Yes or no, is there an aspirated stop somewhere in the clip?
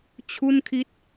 yes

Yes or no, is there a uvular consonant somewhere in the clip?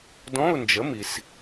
no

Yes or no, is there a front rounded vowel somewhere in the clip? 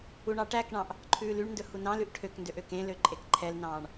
yes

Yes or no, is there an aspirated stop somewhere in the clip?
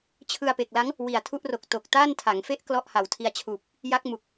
yes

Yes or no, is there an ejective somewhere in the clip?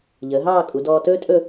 yes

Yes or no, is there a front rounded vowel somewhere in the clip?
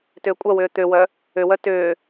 yes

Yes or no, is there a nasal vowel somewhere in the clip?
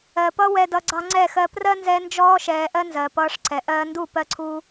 no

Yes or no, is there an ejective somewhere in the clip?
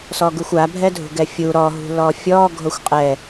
yes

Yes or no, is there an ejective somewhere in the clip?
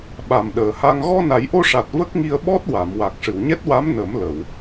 no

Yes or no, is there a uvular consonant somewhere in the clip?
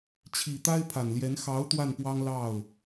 no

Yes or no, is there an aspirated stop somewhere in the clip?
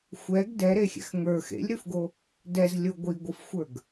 no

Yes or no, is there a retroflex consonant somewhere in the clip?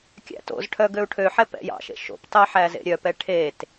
yes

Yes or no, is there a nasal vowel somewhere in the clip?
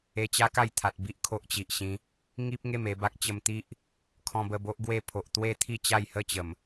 yes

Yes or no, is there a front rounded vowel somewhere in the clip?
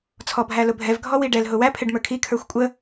no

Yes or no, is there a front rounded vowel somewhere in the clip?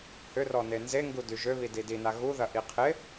yes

